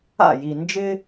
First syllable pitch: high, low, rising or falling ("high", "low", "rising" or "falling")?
falling